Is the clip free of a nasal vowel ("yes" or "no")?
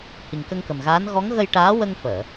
yes